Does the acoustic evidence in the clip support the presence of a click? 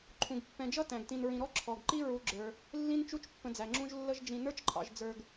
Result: yes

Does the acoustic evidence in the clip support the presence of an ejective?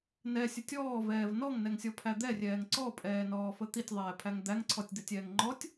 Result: yes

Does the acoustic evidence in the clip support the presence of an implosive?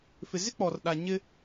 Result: yes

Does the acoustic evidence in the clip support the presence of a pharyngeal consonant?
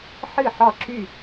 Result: yes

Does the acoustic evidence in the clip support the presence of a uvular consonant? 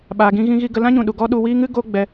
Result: no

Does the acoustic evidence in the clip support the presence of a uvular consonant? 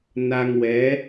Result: no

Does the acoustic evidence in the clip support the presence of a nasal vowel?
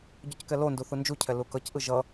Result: no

